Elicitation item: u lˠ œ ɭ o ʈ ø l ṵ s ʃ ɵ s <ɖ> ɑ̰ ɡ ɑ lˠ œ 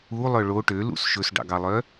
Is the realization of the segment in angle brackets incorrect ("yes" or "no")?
no